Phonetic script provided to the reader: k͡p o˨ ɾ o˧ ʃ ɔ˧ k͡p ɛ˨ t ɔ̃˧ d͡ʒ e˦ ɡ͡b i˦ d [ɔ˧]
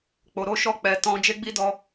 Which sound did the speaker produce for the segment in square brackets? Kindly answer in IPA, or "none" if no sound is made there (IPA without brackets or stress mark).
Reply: ɔ˧